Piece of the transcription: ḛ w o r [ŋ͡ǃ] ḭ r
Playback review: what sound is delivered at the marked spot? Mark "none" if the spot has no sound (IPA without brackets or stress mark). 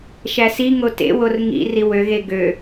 ŋ